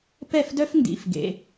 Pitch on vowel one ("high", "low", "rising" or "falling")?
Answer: falling